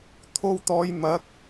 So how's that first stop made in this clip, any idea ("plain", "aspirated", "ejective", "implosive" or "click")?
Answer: aspirated